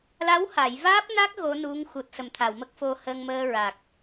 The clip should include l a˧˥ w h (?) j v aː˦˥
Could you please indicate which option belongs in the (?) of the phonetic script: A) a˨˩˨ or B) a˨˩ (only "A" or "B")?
A